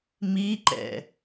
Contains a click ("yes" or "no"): yes